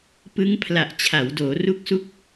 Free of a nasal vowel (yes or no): yes